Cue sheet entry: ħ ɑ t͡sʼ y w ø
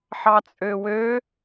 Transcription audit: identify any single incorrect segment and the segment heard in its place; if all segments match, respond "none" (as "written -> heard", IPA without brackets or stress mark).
y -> ø